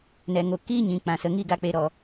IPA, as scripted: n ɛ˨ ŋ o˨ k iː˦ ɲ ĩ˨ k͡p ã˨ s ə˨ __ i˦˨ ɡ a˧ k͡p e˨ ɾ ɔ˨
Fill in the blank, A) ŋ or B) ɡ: A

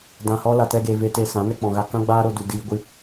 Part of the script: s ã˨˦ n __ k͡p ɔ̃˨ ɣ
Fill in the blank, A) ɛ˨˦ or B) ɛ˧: B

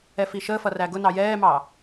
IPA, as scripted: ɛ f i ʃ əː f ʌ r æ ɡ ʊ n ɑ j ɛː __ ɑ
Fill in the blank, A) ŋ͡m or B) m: B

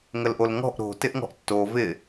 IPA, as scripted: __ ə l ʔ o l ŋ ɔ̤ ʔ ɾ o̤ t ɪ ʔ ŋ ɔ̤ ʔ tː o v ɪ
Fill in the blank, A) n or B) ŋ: B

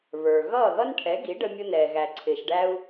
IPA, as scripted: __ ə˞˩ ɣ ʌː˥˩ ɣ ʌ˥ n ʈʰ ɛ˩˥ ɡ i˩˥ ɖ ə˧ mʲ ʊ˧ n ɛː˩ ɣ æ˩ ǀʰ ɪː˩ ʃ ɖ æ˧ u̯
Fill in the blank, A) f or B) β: B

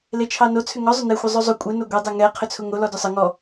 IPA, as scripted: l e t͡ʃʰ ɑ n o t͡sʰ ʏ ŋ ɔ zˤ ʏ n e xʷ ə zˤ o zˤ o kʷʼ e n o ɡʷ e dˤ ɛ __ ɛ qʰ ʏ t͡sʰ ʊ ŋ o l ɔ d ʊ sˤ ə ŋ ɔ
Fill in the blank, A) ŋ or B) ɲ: A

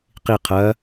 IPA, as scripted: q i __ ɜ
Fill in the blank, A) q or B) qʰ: B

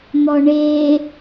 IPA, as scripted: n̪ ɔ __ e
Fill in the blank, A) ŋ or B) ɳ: B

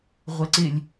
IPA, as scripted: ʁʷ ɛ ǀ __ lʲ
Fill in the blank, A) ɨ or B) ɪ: B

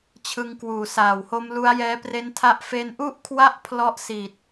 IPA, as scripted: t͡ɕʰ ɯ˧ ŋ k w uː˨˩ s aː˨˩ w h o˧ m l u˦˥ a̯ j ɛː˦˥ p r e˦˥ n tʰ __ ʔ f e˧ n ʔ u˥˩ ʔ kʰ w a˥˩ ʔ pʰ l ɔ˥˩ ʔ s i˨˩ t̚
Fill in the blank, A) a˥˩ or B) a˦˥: B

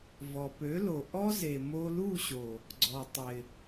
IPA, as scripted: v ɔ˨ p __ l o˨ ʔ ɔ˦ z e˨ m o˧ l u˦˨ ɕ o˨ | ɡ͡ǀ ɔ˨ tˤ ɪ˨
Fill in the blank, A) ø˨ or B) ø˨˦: B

